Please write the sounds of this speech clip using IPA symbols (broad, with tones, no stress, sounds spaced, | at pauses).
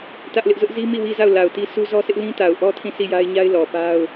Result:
t ä˦ ʔ l ɪ˦ ʔ z ʊ˦ ʔ z i˦ m i˦˨ w i˦ z a˦˨ ʊ̯ l a˨ ʊ̯ t i˦ s u˦ z ɔ˦ s ɪ˦ ʔ l ĩ˦ t a˨ ʊ̯ ʔ ɔ˦ tʰ ĩ˦˨ s i˦˨ j a˦ ɪ̯ ɲ a˦ ɪ̯ l ɔ˨ p a˦ ʊ̯